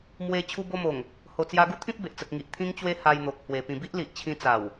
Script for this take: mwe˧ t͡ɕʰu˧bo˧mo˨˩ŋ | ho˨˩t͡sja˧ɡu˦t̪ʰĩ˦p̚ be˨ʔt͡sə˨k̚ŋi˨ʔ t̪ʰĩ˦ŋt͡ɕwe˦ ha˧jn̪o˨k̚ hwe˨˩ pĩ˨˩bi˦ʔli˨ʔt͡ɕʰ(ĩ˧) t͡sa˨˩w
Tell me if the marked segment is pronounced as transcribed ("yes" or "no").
yes